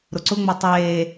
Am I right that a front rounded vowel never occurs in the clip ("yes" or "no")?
yes